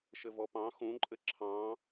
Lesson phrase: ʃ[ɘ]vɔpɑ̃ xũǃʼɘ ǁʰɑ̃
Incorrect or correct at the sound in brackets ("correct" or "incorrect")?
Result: correct